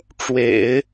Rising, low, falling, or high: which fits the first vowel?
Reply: low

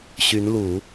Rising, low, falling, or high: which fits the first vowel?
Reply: rising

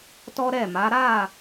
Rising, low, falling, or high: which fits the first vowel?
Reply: high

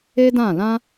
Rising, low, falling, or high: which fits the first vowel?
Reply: high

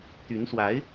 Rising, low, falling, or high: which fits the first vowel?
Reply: rising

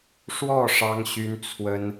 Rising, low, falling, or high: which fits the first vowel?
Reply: falling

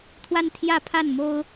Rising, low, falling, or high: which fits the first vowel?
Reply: high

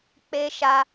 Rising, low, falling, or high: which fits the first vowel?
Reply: high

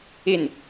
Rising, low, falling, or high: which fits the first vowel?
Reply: falling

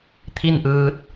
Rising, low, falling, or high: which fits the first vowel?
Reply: falling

